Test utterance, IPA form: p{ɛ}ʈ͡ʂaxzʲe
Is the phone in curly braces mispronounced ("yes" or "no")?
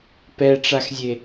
no